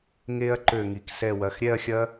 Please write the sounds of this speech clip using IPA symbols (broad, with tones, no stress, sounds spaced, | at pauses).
ŋ e˦˥ ɐ̯ ǃ ø˧˩ ŋ i˩ k s ɛ˧˩ w ɐ˩˧˩ x ɾʲ ɛ˥˧ ɐ̯ xʲ ɐ˦˥